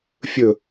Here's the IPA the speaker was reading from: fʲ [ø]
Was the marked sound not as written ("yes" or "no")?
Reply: yes